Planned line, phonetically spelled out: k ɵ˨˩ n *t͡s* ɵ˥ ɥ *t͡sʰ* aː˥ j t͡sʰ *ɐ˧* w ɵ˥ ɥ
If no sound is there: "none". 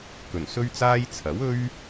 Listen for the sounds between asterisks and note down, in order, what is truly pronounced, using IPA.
s, t͡s, ɐ˨˥

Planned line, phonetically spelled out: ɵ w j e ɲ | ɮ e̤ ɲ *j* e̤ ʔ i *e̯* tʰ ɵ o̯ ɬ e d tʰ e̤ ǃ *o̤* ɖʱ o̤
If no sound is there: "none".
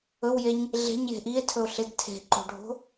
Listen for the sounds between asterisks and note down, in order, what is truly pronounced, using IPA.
j, e̯, o̤

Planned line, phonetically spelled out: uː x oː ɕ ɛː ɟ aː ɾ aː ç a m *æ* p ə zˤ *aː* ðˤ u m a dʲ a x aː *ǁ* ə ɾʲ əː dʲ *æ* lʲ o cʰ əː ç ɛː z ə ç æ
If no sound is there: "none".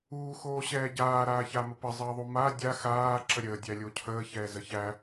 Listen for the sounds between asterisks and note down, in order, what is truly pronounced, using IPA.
ə, əː, ǁ, æ

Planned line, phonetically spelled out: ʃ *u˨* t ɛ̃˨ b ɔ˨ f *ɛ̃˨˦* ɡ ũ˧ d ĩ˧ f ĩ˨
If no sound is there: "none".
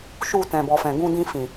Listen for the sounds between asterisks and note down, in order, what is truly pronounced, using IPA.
u˨, ɛ̃˨

